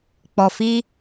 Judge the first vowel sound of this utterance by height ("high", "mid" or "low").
mid